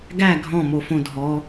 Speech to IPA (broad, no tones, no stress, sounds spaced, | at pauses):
ɡ æ ɡʱ ɔ̃ m o f õ dʱ ɔ